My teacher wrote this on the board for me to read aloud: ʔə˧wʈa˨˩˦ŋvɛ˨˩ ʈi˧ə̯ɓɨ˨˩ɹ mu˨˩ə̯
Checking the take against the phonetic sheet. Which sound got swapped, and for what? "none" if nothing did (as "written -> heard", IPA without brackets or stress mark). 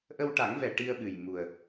ɹ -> j